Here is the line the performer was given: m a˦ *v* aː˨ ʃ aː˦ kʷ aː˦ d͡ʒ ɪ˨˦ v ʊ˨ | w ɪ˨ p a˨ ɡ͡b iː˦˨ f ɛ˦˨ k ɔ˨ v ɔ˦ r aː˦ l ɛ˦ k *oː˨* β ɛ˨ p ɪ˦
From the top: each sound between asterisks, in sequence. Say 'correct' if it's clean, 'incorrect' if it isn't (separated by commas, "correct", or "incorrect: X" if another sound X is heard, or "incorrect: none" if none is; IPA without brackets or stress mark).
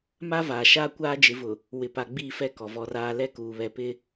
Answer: correct, incorrect: uː˨